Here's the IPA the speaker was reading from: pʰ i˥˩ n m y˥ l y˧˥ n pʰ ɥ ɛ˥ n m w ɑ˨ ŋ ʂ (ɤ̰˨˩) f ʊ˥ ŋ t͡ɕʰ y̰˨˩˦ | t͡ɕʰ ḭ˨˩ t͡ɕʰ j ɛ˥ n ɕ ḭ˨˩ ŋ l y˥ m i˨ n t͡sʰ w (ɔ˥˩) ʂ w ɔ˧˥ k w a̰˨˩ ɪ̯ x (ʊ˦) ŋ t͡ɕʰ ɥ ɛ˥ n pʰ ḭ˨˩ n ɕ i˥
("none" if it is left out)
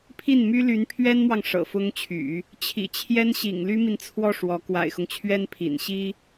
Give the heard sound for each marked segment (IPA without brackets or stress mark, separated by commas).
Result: ɤ̰˨˩, ɔ˥˩, ʊ˦